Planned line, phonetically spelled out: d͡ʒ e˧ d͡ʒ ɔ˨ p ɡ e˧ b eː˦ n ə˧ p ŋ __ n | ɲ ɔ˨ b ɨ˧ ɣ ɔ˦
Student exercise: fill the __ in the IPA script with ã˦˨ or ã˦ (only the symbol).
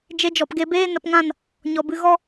ã˦˨